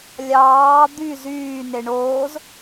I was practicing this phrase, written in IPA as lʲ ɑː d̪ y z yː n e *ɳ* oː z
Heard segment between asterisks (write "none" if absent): ɳ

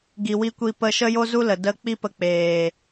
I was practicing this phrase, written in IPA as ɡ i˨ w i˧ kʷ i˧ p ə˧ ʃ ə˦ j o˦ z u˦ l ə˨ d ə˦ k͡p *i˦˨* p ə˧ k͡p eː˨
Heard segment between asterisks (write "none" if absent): i˦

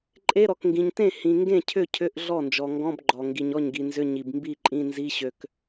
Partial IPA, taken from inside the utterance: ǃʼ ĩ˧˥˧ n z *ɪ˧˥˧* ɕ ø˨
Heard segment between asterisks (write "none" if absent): i˧˥˧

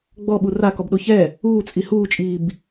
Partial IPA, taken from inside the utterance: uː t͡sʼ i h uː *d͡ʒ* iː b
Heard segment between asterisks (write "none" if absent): t͡ʃʼ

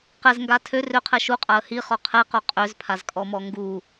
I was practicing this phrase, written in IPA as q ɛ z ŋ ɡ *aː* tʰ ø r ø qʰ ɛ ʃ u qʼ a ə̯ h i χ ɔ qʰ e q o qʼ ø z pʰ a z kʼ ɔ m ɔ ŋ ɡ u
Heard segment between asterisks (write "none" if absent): a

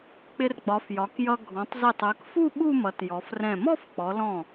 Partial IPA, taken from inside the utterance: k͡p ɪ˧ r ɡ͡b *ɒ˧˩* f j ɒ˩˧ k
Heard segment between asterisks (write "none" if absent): ɒ˩˧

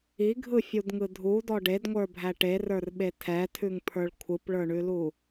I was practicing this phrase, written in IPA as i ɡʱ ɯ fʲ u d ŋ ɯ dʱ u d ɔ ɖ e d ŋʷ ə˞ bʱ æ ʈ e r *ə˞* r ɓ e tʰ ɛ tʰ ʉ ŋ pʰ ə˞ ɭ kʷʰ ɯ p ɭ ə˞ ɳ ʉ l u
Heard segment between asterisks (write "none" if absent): ə˞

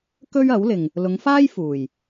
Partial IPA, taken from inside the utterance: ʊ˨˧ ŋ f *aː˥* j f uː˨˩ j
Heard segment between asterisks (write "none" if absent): aː˥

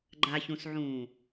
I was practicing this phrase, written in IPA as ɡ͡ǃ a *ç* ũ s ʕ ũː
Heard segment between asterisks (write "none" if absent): ç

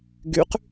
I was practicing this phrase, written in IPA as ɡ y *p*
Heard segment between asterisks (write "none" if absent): q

